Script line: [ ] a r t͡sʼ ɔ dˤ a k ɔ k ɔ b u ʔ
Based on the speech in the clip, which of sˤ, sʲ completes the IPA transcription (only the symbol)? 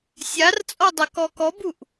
sʲ